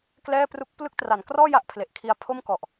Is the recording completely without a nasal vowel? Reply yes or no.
yes